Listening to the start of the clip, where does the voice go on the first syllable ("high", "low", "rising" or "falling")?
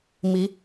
rising